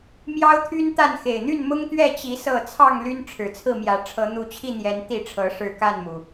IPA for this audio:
m j ɑ˦ ʊ̯ t̪ʰ y˦ n t̪ a˥˨ n x e˨˩ ɪ̯ n̪ y˥˨ n m ʊ˦ ŋ t̪ ɥ ɛ˥˨ t͡ɕ i˨˦ s ɤ˥˨ t͡sʰ ɑ˥˨ ŋ l y˦ n ʈ͡ʂʰ ɻ̩˨˩ t͡sʰ ɹ̩˥˨ m j ä˨˦ ʈ͡ʂʰ ɤ˨˦ n̪ u˨˦ t͡ɕʰ i˥˨ n̪ j ɛ˨˦ n t̪ i˥˨ ʈ͡ʂʰ ɤ˨˦ ʂ ɻ̩˥˨ k a˥˨ n m u˩

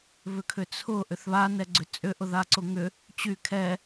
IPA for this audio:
β ʏ kʰ ʏ t͡sʰ ʊ ʔ ʏ θ β a n ɛ ɡ͡ǀ ʏ t͡sʼ ʏ ʔ ʊ ð a ǀ ʊ ŋ ʏ | t͡ɕ y kʰ ɛ

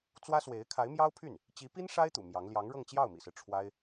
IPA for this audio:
t͡s w ä˥ s w e˧˥ ɪ̯ kʰ a˧˥ ɪ̯ m j ɑ˥ ʊ̯ pʰ y˥˩ n | t͡ɕ i˧˥ p i˥ n ʂ a˥ ɪ̯ t̪ ṵ˨˩ m j ɑ˧˥ ŋ l j ɑ˧˥ ŋ ɻ ɤ˥˧ ŋ t͡ɕ j ɑ˥˩ ʊ̯ m ḭ˨˩ s ɹ̩˦ ʈ͡ʂʰ w a˥ ɪ̯

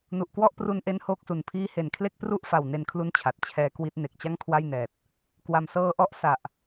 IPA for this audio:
n u˨˩ ʔ k w ɔ˥˩ ʔ p r u˧ n ʔ e˦˥ n h oː˥˩ k̚ s u˨˩ n pʰ iː˥˩ h e˨˩ n kʰ l e˥˩ k̚ p r u˥˩ ʔ f a˨˩ w n e˧ n kʰ l u˦˥ n t͡ɕʰ a˨˩ t̚ t͡ɕʰ ɛː˦˥ k w i˦˥ t̚ n e˨˩ k̚ t͡ɕ a˥˩ ŋ kʰ w a˥˩ j n ɛː˨˩ t̚ | k w a˨˩ m s ɤː˦˥ ʔ ɔ˦˥ ʔ s a˨˩ ʔ

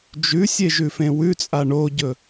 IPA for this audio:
d͡ʒ ʉ sʲ e ʒ ʉ f ẽ w ʉ t͡sʼ a ɳ o ɟ ɵ

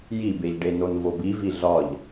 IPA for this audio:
j i b e ʎ ɖ e n o n v o b i v i ɮ ɒ ʎ

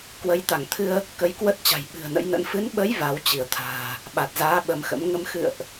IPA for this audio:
k w ə˨˦ j t̪ a˧˩ ŋ t̪ʰ ɨ˧ ə̯ | k ə˨˦ j k w ə˦˥ t̚ t͡ɕ a̤˨˩ j ɓ ɨ̤˨˩ ə̯ n ə̰˧˥ j n ə̰˧˥ n f ɨ˨˦ n ɓ ə˨˦ j v a˨˦ w t͡ɕ i˧˩ ə̯ t̪ʰ a̤ː˨˩ | ɓ a˨˩ t̚ z aː˨˦ ɓ ə˨˦ m x ə̰˧˥ m ŋ ə˧ m x ɨ̰˧˨ ə̯ ʔ

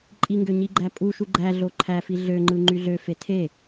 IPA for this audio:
ǃʼ i ŋ ɡ ø ɲ i ɡ͡ǃ æ pʼ u ʃ u ɡ͡ǃ æ ɮ o ǃʰ æ f i ɮ ø ŋ͡ǃ ɯ ŋ͡ǃ y ɮ ø f e tʰ e

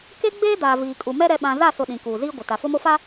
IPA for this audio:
k e˦ ɡ͡b eː˦ d aː˨ v iː˨ kʼ u˨ m ɛ˦ ɾ ɛ˦ ɓ ã˦ z a˦˨ s ʊ˨ ɗ ĩ˨ k uː˨ z iː˦ ɡʷ ɪ˨ t a˨ f ʊ˦ m o˦ f a˦

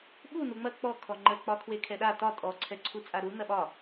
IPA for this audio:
ɓ u n u ŋ͡m ɐ k͡p ɔ kʰ ɔ ŋ͡ǃ ə k͡p ɒ kʰ w e kʰ ɛ ɗ a t ɒ tʼ ɔ ǀʰ ɛ ǀʰ u t͡sʼ a ɾ u n ɐ ɓ ɒ

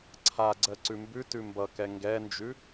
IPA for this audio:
ǀʰ a ɡ͡ǀ ɜ ǀ ʉ m b ʉ t ʉ m b ʌ k ɛ ŋ ɡ ɛ n d͡ʒ ʉ

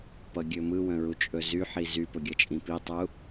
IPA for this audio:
p ʌ ɡʲ ɵ m ɯ w ə̃ ɹ u t͡ʃʼ ɵ z y ħ i z y p ɵ ɡʲ ʌ t͡ʃʼ ĩ p i tˤ u

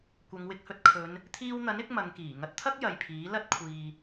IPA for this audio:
kʷ ɐ˨˧ ŋ w ɪ˧ k̚ h ɵ˧ t̚ kʰ ɵ˨˧ n | t̪ʰ iː˧ w n̪ ɐ˨˥ n ɪ˧ k̚ m ɐ˨˧ ŋ k iː˨˩ ŋ ɐ˧ t̚ t̪ʰ ɐ˥ k̚ j ɐ˨ j pʰ iː˨˥ l ɐ˥ t̚ kʷʰ iː˨

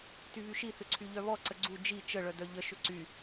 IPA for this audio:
t y β y ʃ i θ ʏ ǀʰ y ʎ œ β ɔ ǀ ə ɡ͡ǀ u d͡ʒ i t͡ʃ ə ɭ œ d œ ʎ ə ʃ ʏ ǀ y

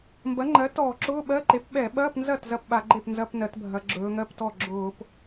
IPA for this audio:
m b ɐ˩˥ ŋ͡ǃ ɜ˩˥ t ɔː˧˩˧ ǁ ʊː˧˥˧ ɓ ɜ˧˥˧ ǃ e˩˥ p ɓ ɛ˧˩˧ ɓ ɐː˧˥˧ p n z ɐ˥˩ t z ɐ˥˩ p ɓ a˧˩˧ ɡ͡ǃ e˥˩ p n z ɐ˧˥˧ p n ɜ˩˧ t bʱ ɐ˩˧ ɡ͡ǁ ɵː˩˧ ŋ ɜ˧˥˧ p t ɔ˥˩ ɡ͡ǁ ʊː˧˩˧ p

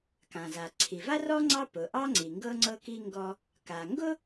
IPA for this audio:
k ã˩ z a˩ ǀʰ i˩ v a˥ r ɔ˥ ŋ͡ǀ ɑ˥ p ʊ˩ ʔ ɑ˥ ŋ͡ǀ i˩ ŋ ɡ ɤ˥ ŋ͡ǀ ɤ˥ k i˥ ŋ ɡ ɔ˥ | k a˩ ŋ ɡ ʊ˥

